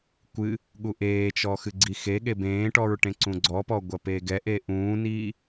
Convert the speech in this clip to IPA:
kʷ ɨ | ɠ u ʔ eː t͡ʃ ɔ x ɨ ɡ͡ǀ i x e ɠ e b ẽː ʈ ɔ ɹ ʈ ẽ ǀ ũ ɡ͡ǀ ɔ p ɔ ɡʷ ɐ p eː ɡ ɛ ʔ e ʔ ũː n iː

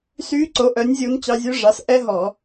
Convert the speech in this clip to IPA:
s yː˦˥ ǀ o˨˥ ʔ œ˨˥ nʲ zʲ u˦˥ n t͡ɕ ɑ˦˥ zʲ ʉ˦˥ ʐ ɑ˨˥ s ʔ ɛ˦˥ ɦ ɔ˧˩˧

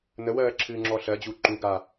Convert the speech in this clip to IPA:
n ə w ɜː ǁʰ ɨː ŋ͡ǁ ɔ ɬ ɜ d͡ʑ u ǃ u ɡ a

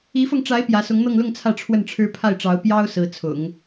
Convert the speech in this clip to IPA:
i˧˥ f ɤ˧ ŋ ʈ͡ʂ a˧˥ ɪ̯ p j ä˧˥ s ʊ˧˥ ŋ n̪ ɤ˥˧ ŋ l ʊ˥˧ ŋ t͡sʰ ä˥˧ ʈ͡ʂʰ w ə˥˩ n ʈ͡ʂʰ ɻ̩˥ pʰ a˥˩ ɪ̯ ʈ͡ʂ ɑ˧˥ ʊ̯ p j ɑ˥ ʊ̯ s ɹ̩˧˥ t͡sʰ ʊ̰˨˩˦ ŋ

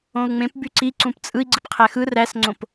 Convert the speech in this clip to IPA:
õ u̯ ŋ͡m ẽ p b y ǀ i ǀ ũ p t͡sʼ ɯ i̯ ɡ͡ǀ ɯ p qʰ æ x ɯ r æ s ŋ͡ǀ õ p

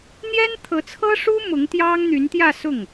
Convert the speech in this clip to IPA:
n̪ j ɛ˥ n t̪ʰ ɤ˧˥ t͡sʰ ɤ˥ ʂ u˥ m ʊ˧˥ ŋ t̪ j ɑ˥ ŋ n̪ y˧˥ n t̪ j ä˥˧ s ʊ˥˩ ŋ

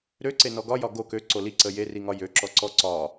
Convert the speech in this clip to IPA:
ɾ ø ǀ e n ɔ ɡ ɒ j ɒ ɡ o k ø ǀ o l i ǀ ə j e r i ŋ ɒ j ø ǁ ɔ ǀ ɔ ǀ ɒ

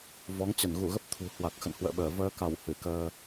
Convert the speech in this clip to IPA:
v ɔ˨˦ ŋ t͡ɕ ə˧˩ n ɣ u˧˩ ɣ ə˦˥ p̚ t̪ʰ ṳ˨˩ h w a˨˩ k̚ x ə̰˧˨ n h w ə̰ː˧˨ ɓ əː˧˩ v əː˧ k a˧˩ w h ɨ˧˩ k əː˧

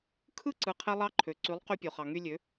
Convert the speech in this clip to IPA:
kʰ ɯ˦ ǀ ɯ˧ qʰ e˦ lˠ ɑ˦ ǃʰ ø˨ ǀ y˨˦ lˠ q y˧ pʲ o˨ χ ɑ˨ ŋ y˧ lʲ ø˨˦

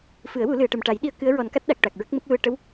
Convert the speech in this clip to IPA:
f ɨ˨˩˦ ə̯ w u˨˩˦ l ɨ˨˩˨ ə̯ ʈ ə˨˩ m ʈ a˨˩˦ j ɗ i˧ ə̯ k ɨ˧˥ ə̯ ɹ ɔ˨˩˦ n k a˦˥ t̚ ɗ a˨˩ k̚ ʈ a˨˩ k̚ ɹ ə˦˥ k̚ m ə˦˥ k̚ l u˧ ə̯ ʈ ə˧˥ w

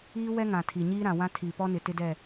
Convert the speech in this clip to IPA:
iː˦ w ɛ˦ ŋ ã˨ tʰ i˨ ɲ iː˦ ɾ ã˨ w ã˦ tʰ iː˨ p ɔ˦ n ɪ˨ t ɪ˦ d ɛ˦˨

